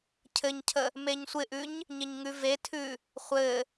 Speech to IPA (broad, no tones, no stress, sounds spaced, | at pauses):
cʰ ɘ ɲ cʰ ə | m e ɲ sʷ ɪ ʔ ʉ ɲ | ɲ ɪ ɲ ŋ ʉ v e tʰ ʉ | χʷ ɘ